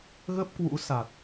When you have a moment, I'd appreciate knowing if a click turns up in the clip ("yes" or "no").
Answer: no